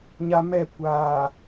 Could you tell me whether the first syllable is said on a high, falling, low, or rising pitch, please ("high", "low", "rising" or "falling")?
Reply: low